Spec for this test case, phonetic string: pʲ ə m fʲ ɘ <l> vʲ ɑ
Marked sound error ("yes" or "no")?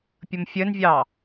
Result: yes